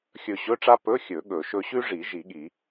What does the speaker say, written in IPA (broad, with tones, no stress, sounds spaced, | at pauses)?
xʲ ɵ˧˩ ɕ ɵ˧˥˧ ʈ͡ʂ a˥ p ɵ˧˥˧ xʲ ɵ˨˩˦ ɠ ɵ˨˩˦ ʃ ɵ˥ ɕ ʉ˥ ʐ i˨˩˦ ʒ i˨˩˦ ɠ i˨˩˦